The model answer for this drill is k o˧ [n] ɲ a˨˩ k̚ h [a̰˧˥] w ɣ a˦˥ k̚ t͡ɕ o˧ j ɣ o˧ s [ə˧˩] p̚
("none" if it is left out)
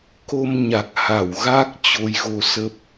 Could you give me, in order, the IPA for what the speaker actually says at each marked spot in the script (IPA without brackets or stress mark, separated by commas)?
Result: m, a˧˩, ə˦˥